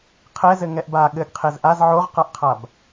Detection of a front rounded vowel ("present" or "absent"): absent